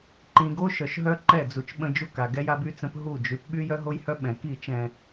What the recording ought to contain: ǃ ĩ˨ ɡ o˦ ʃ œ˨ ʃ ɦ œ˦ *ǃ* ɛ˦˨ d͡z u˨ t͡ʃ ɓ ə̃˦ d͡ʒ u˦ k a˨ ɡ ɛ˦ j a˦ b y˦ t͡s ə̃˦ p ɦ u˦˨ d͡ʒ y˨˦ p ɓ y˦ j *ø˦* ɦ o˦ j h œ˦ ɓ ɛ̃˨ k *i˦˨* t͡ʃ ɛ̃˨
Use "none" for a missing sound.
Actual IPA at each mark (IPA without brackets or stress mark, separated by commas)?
ǃ, œ˦, i˦˨